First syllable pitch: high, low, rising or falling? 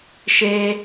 high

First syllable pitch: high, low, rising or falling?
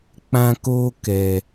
high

